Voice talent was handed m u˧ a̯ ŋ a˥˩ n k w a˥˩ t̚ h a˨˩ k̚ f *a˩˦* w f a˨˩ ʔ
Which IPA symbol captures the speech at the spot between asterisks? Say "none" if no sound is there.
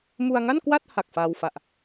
a˧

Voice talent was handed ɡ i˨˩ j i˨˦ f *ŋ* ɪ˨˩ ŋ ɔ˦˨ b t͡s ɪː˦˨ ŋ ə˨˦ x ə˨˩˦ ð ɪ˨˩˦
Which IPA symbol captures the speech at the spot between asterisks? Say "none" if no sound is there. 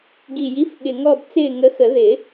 ɠ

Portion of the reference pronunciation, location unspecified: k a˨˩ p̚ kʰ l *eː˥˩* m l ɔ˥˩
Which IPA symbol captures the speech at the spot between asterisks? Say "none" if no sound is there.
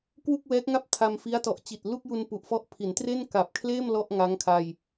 eː˥˩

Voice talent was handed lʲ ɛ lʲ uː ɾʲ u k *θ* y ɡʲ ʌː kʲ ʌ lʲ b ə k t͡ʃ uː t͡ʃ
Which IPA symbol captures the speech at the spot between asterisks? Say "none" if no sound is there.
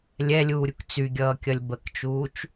t͡s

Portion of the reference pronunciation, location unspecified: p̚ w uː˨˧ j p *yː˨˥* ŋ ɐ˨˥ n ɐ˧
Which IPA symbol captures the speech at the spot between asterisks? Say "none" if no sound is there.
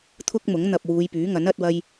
yː˨˥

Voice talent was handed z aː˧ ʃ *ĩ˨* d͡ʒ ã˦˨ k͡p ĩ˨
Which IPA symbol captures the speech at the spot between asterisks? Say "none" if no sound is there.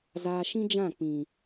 ĩ˦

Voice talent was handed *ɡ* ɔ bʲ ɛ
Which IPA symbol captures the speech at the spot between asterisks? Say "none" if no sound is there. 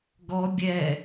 ɡ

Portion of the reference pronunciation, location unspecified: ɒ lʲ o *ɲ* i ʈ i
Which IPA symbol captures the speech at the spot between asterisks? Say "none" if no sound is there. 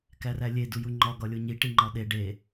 ɲ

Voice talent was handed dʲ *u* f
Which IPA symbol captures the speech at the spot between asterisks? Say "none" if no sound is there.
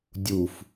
u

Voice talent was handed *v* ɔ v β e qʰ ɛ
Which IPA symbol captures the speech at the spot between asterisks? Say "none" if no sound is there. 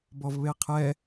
b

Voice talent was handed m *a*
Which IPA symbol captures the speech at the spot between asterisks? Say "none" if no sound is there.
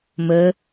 ə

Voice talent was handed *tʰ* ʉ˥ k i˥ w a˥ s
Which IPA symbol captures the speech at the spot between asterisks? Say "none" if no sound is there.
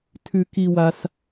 tʰ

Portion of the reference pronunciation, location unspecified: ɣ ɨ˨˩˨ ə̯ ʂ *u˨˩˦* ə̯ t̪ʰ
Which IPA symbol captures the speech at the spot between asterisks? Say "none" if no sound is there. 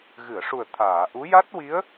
u˨˩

